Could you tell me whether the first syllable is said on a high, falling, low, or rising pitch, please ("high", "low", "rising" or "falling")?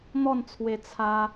falling